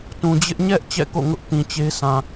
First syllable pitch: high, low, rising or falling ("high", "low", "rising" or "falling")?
low